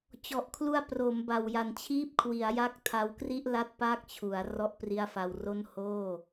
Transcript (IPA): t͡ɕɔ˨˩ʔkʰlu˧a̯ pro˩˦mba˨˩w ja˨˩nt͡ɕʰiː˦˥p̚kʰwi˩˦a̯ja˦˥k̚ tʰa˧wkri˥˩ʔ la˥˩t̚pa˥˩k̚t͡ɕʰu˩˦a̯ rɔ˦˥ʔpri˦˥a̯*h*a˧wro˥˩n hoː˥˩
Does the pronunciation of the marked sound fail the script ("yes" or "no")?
yes